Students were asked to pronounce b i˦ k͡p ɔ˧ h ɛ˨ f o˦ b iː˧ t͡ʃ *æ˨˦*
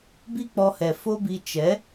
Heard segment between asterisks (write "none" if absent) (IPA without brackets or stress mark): ɛ˨˦